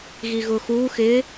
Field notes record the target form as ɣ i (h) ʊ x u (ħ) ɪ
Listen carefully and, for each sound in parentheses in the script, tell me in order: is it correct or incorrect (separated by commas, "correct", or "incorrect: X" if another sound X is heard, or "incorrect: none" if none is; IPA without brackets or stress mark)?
incorrect: ɣ, incorrect: x